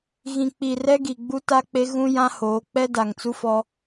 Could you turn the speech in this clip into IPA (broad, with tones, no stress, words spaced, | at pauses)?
ɣĩ˨k͡pi˨ rɛ˦ ɡi˨ɡ͡bu˦ ta˦k͡pe˦ ɣũ˦jã˦hoː˨˦ k͡pɛ˦da˨ŋt͡su˦fɔ˦